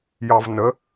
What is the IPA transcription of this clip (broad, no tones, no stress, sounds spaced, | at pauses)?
j ɑ v n ə